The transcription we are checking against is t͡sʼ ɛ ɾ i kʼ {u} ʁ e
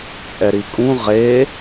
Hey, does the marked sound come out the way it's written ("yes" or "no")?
no